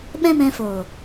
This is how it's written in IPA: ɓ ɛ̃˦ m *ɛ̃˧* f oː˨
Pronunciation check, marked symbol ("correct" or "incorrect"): correct